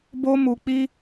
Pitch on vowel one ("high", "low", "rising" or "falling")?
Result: high